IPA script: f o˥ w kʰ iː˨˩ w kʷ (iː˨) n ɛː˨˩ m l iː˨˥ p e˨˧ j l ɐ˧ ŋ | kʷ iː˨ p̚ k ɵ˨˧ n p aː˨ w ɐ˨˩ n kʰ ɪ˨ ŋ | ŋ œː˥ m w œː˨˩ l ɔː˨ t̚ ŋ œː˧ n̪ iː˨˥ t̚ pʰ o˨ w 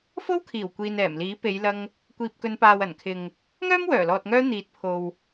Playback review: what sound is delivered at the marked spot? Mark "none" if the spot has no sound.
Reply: iː˨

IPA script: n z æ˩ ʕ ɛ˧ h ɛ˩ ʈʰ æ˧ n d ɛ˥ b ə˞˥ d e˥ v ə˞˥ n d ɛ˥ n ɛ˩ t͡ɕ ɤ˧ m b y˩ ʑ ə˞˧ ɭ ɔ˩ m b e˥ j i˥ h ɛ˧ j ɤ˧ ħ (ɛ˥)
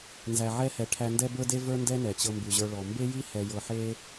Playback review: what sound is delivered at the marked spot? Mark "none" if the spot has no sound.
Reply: e˥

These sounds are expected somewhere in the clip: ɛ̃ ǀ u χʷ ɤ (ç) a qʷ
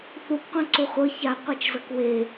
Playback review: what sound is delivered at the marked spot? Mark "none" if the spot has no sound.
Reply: ç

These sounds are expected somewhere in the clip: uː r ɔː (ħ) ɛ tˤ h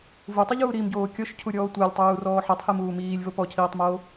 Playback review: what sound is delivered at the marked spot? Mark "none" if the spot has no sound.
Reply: ħ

